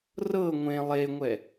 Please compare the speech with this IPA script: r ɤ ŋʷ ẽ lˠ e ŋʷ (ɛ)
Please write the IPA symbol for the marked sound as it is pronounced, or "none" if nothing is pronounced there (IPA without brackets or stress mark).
ɛ